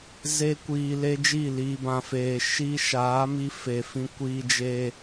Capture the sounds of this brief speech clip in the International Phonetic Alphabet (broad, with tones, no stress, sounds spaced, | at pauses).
z e˦ kʷ iː˧ l e˦ d͡ʒ i˦˨ l iː˨ b ã˨ f eː˨ ʃ i˧ ʃ aː˨˦ m i˧ f e˨ f ĩ˧ kʷ iː˧ d͡ʒ eː˧